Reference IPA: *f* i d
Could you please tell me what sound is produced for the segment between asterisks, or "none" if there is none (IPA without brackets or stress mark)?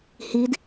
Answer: h